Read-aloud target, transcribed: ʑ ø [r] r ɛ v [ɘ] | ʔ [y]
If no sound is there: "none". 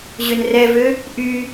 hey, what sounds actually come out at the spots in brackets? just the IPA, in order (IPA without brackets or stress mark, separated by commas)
n, ø, y